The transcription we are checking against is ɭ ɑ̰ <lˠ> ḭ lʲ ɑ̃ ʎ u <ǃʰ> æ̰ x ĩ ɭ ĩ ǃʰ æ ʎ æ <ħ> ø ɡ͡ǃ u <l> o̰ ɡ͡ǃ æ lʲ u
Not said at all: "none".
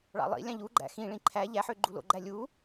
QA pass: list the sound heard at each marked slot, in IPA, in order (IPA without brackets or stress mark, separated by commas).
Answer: lˠ, ɡ͡ǃ, ħ, l